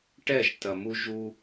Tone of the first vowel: falling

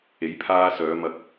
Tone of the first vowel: rising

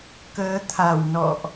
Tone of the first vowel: rising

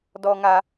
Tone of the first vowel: high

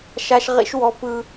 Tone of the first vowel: high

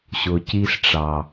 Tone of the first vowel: low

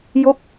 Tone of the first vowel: falling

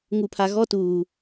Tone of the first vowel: low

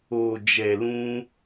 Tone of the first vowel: low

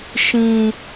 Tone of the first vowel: high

